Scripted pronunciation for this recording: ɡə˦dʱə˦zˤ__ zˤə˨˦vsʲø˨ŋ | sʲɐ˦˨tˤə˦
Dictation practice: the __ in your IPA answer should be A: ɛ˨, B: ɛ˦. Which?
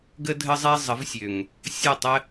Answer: B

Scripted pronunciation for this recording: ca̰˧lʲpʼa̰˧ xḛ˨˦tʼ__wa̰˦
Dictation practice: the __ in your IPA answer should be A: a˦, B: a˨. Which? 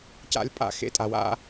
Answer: B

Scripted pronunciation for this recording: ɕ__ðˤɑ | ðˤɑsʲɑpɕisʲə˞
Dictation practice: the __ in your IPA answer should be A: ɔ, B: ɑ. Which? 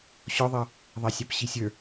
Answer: A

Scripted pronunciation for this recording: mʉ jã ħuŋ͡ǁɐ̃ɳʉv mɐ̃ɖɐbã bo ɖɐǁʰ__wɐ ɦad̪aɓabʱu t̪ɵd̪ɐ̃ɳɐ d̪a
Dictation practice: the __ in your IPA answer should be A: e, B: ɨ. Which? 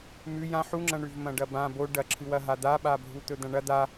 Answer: B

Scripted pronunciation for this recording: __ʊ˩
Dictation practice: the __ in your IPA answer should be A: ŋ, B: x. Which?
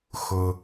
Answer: B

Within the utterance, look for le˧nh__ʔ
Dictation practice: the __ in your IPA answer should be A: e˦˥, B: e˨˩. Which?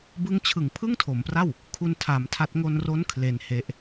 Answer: A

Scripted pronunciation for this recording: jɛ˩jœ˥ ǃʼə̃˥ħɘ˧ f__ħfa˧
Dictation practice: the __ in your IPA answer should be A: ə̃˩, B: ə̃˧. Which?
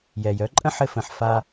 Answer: A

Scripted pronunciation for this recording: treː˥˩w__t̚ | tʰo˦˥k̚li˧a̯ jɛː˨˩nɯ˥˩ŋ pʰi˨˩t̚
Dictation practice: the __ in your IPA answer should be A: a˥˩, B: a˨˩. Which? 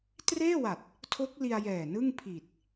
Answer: B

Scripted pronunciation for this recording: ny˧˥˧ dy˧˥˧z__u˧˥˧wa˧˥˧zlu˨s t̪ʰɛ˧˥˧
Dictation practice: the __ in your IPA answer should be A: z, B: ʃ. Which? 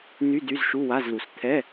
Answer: B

